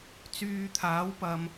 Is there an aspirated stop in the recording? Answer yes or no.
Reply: yes